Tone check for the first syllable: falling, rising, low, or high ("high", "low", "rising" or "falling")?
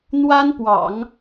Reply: high